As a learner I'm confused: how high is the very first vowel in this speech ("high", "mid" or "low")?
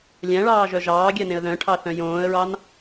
low